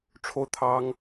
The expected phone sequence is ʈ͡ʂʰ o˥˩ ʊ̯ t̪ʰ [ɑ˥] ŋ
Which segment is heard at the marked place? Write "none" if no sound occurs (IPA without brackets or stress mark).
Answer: ɑ˥